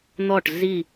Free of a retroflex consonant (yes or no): no